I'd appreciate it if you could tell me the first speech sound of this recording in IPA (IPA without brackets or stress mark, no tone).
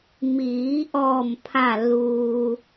m